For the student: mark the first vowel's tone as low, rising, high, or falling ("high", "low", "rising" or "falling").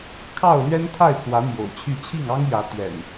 falling